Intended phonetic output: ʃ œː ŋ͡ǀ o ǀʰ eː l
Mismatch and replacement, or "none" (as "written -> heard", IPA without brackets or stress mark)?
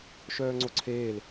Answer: none